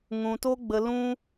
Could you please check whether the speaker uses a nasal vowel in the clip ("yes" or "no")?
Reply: yes